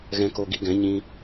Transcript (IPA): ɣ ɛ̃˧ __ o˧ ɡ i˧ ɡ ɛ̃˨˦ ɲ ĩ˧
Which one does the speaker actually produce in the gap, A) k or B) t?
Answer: A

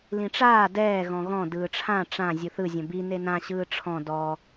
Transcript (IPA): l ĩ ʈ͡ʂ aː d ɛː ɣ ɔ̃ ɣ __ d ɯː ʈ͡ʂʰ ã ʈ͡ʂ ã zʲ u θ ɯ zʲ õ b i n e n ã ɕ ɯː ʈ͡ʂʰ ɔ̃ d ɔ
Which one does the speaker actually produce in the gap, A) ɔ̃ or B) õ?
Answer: A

